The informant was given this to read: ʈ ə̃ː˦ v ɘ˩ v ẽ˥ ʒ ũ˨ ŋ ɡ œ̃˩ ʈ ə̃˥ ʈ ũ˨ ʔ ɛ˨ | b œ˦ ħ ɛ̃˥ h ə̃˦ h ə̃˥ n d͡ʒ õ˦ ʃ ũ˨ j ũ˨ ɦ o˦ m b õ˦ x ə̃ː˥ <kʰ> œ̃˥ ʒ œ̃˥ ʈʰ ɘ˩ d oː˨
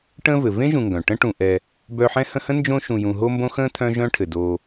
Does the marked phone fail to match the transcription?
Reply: yes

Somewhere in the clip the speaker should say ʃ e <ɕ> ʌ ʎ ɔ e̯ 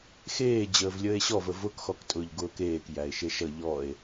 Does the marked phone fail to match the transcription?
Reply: yes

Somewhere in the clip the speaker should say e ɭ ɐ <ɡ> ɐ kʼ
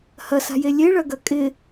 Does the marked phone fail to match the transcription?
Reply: no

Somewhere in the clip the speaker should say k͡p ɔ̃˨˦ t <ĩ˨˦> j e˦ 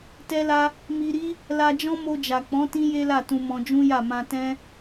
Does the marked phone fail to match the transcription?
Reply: yes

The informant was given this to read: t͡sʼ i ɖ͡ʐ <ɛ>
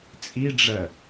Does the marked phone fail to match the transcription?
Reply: yes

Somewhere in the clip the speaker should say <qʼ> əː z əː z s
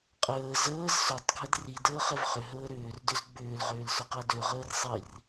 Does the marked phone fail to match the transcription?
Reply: no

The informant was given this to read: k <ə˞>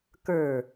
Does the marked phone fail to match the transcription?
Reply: no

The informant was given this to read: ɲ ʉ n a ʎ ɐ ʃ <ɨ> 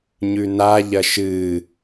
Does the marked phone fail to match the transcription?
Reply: no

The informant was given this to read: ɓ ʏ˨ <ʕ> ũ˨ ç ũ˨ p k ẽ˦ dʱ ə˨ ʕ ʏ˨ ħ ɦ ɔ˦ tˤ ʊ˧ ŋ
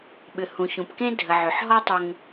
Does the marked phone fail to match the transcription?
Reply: yes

